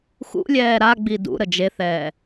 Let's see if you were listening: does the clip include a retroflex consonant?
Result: no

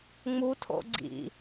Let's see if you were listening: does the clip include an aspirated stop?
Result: yes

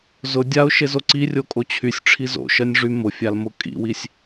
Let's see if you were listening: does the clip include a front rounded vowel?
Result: yes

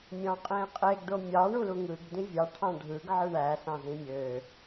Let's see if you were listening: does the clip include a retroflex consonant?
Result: yes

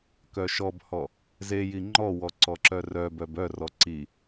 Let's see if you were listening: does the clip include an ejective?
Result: no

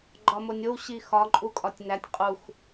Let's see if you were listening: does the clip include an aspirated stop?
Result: no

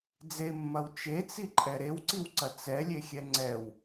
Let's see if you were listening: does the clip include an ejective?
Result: yes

